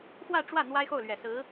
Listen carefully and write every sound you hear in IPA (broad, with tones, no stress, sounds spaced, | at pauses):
x w ä˥˧ ʈ͡ʂ w ä˥˩ n̪ w a˥ ɪ̯ x o˥˩ ʊ̯ l ɥ ɛ˨˩ s ɹ̩˧˥